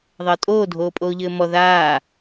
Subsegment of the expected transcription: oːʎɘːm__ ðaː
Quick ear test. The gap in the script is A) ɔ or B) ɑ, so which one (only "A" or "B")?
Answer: A